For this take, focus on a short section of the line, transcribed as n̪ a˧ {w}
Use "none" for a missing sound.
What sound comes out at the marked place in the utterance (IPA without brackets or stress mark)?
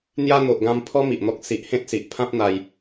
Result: j